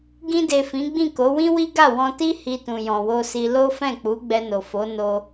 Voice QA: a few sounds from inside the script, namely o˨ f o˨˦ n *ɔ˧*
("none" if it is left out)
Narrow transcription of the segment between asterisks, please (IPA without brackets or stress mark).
o˧